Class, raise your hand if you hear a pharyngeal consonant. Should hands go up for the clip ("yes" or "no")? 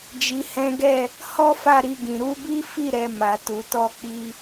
no